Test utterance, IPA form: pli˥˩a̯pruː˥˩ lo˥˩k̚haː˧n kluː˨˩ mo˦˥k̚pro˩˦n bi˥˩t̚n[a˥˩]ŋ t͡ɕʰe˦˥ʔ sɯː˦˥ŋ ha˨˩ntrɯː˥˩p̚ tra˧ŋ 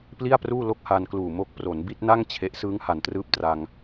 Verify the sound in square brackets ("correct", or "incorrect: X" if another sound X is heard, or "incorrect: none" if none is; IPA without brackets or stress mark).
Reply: correct